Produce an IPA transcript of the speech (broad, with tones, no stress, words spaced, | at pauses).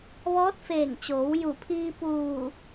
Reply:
ʋɔː˧˥t̚feː˧˩ŋt͡ɕoː˩˧w ju˧˩pʰiː˧ puː˧˩